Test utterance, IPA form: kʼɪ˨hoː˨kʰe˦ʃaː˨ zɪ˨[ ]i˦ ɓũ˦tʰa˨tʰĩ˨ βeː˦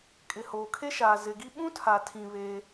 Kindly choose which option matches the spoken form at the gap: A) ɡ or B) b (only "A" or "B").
A